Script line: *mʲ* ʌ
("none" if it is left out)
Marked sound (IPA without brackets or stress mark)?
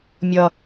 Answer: mʲ